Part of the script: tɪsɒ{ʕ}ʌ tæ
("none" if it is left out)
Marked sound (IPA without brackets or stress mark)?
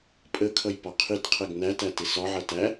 ʕ